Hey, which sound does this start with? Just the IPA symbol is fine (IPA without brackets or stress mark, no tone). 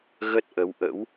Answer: ɣ